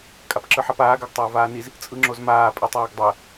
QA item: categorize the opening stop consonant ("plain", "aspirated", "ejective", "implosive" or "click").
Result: ejective